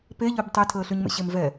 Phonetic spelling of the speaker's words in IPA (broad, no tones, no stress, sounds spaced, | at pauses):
p e ʎ ø b tˤ ɛ tʰ əː ɬ y ɲ m ḛ ɕ e m v ɛ